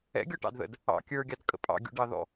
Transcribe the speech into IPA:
ɛ̰ ɡʲ ɔ ʈ ɑ̰ d ð ə̰ d | ɑ̰ kʲ ə˞ ɡʲ ɑ d kʼ ə̰ pʼ ɑ̰ ɡʲ ṵ ɖ ɑ ð ɔ̰

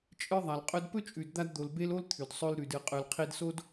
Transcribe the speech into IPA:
t͡ʃʼ ɨ˦ ðˤ a˨ l qʼ ɵ˧ d p ɵ˦ t͡ʃʼ ʉ˨ d d̪ a˧ d d̪ o˨ l b e˦ l o˦ l t̪ʰ ʉ˨ d sˤ ɵ˧ l ɾ ʉ˨ d ɨ˨ qʼ ʉ˨ l qʰ i˧ d s o˦ d

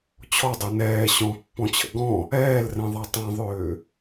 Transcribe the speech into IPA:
t͡ɕʰ ɔ dˤ ø n ɛː ɕ ɔ̃ pː ɔ̃ t͡ɕʰ ə̰ ɡ ɔ̃ | ɛː l r ɛ̃ ðˤ a tˤ ã ðˤ ʏː

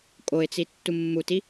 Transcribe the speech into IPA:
kʼ o ɪ̯ t͡s i tː u mː u t i

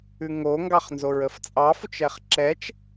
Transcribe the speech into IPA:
ʉ ŋ o ŋ ɡ ɑ χ n z o ɹ ə f t͡sʼ ɑ f ʊ t͡ʃ ɛ χ ǁ ɛ t͡ʃ

